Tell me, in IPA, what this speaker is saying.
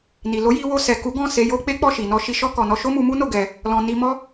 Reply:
n i˨ l o˨˦ j i˧ w o˧ s ɛ˨ k u˨˦ ɡ ɔ̃˦˨ s e˧ j o˦ k͡p e˦ k͡p ɔ˦˨ ʃ i˨ n ɔ˧ ʃ i˧ ʃ ɔ˦ k ɔ˧ n ɔ˧ ʃ o˦ m u˧ m u˦ n o˦˨ ɡ ɛ˧ | l ɔ̃˨ n i˧ m ɔ˦

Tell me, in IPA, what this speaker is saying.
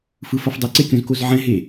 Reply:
f ɯ f ʌ f dˤ e ǀ e kʲ õ z k o z ʕ ɛ̃ ɦ e

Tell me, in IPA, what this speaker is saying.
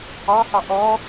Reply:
ɑ h ɑ ʔ ɔ

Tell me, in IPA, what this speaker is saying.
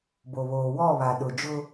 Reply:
b o˨ β oː˨ w ɔ˦˨ β a˨ ɗ ʊ˨ d͡ʒ ʊ˦

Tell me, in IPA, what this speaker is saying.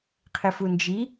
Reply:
qʰ ɪ f u n d͡ʒ i

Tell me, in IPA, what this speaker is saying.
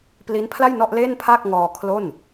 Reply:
p l i˦˥ n pʰ l a˥˩ j n ɔ˥˩ ʔ l e˥˩ n pʰ a˥˩ k̚ ŋ ɔː˧ kʰ l o˥˩ n

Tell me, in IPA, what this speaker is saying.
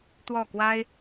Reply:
t̪ w ɔ˥˩ k w a˥ ɪ̯

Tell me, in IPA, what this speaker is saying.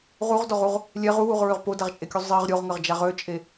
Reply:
ʁ u ʁ d ɔ ʁ u ʁ | lʲ ɛ ʁ u w u ʁ ɹ ø ʁ p o d a ʁ t͡ʃʼ e kʲ u zˤ i ʁ ɾʲ o ʁ ŋ ə ʁ d͡ʒ a ʁ ø t͡ʃʼ e

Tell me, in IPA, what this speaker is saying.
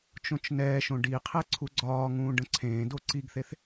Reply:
t͡ʃ õ t͡ʃ n ɛː ʃ õ ɖ i qʰ ɛ ǀʰ u ɡ͡ǀ ɒː ŋ ũː ɖ ə̃ ǀʰ ẽː d o ǀ i ɡ θ e θ

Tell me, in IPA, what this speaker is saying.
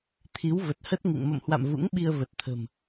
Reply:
t̪ʰ i˨˦ w v ə˨˩ t̚ h ə˦˥ t̚ ŋ ɨ̰˧˨ ŋ m ə̰˧˨ m h w a̰˧˨ m v ṵ˧˥ ŋ ɓ i˧ ə̯ v ə˨˩ t̚ t̪ʰ ə̤˨˩ m

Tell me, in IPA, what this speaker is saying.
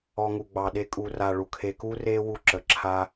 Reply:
ɔ˧ ŋ u˨ ɡ͡b ɑ˨ ɗ e˧ kʼ u˨ r a˨ ɭ u˧ kʰ e˦ k u˦ r e˧ w u˦ ǁ ə˨ ǁʰ a˦

